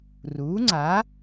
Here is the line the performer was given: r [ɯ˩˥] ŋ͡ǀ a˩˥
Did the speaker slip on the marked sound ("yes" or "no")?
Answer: yes